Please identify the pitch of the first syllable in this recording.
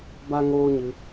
high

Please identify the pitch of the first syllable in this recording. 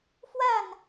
falling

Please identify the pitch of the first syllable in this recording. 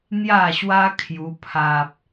falling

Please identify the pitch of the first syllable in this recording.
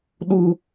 high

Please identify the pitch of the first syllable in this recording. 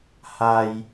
high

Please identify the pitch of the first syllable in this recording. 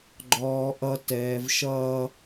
high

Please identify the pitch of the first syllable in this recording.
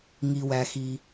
low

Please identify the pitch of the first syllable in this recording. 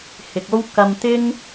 low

